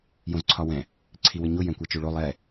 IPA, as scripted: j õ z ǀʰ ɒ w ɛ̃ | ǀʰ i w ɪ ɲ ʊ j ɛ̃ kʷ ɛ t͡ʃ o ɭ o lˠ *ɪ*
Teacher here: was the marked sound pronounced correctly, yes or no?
no